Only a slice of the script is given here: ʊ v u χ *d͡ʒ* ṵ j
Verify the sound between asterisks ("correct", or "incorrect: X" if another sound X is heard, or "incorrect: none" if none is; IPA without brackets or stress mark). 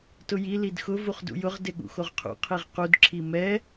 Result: incorrect: d